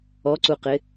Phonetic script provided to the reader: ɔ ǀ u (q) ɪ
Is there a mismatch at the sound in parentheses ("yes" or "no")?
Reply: no